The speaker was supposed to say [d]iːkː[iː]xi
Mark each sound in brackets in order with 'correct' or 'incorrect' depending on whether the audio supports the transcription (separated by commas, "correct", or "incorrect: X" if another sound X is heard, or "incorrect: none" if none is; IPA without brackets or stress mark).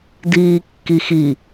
correct, incorrect: i